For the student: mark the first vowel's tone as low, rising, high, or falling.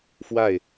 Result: falling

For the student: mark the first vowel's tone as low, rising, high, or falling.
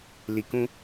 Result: low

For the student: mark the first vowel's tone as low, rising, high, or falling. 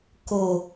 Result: low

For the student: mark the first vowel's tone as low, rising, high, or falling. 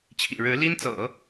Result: low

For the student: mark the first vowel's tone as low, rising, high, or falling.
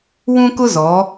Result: high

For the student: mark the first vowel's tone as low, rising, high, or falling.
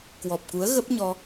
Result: low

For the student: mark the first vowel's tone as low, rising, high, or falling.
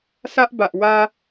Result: high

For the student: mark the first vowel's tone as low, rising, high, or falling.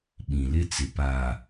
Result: low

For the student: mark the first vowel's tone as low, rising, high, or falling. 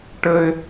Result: high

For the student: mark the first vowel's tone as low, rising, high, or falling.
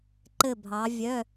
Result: falling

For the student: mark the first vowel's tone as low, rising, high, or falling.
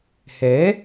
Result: rising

